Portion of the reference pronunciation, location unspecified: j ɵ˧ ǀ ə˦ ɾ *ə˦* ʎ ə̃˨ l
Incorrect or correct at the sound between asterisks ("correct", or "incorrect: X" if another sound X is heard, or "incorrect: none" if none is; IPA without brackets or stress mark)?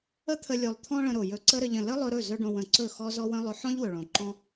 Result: incorrect: ə˧